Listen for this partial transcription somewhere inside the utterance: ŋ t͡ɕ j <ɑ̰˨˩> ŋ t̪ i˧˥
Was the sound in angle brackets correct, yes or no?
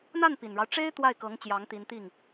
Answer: no